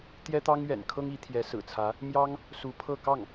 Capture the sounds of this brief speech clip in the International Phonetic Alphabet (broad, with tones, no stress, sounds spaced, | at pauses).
t̪ j ɛ˥ t̪ ɑ˥ ŋ ɥ ɛ̰˨˩ n kʰ ɤ˥ ŋ i˧˥ t̪ʰ j ɛ˧˥ s ɹ̩˨˩ t͡sʰ ä˧˥ | m j ɑ˥ ŋ | s u˧˥ pʰ ɤ˥˧ k ɑ˥˩ ŋ